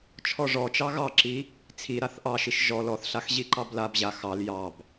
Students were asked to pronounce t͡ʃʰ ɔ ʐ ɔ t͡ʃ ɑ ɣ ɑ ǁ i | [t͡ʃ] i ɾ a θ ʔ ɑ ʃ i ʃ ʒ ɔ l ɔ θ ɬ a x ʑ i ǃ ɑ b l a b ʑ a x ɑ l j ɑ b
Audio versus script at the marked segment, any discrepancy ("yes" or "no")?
yes